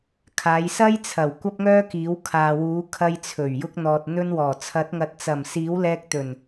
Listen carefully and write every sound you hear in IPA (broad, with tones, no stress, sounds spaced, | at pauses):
kʰ aː˨˧ j s ɐ˥ j t͡sʰ ɐ˨˩ w kʷ ɐ˥ p̚ ŋ œː˥ k iː˨˥ w kʰ aː˨ w uː˨˥ kʰ ɐ˧ j t͡sʰ ɵ˨˩ ɥ j ʊ˧ k̚ n̪ ɔː˨ t̚ n̪ ɵ˧ n w ɔː˨˩ t͡sʰ ɐ˨˥ t̚ ŋ ɐ˨ t̚ t͡s ɐ˨˩ m s iː˨˥ w l ɛː˧ k̚ t̪ ɵ˨˩ n